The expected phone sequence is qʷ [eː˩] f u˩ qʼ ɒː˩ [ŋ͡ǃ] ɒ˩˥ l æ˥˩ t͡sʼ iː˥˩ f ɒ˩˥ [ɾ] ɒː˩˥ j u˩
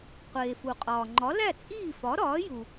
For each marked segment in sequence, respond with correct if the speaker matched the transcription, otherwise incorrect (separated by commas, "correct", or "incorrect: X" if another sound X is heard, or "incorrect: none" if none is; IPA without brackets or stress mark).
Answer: correct, correct, correct